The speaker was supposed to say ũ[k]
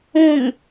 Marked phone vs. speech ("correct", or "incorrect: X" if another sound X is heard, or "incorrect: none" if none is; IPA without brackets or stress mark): incorrect: ŋ